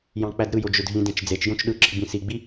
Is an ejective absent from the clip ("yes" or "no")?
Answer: yes